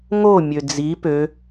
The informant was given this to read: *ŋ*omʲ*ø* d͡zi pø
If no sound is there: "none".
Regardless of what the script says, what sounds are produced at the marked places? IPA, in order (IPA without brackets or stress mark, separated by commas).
ŋ, ø